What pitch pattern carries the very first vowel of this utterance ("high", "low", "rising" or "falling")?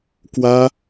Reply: high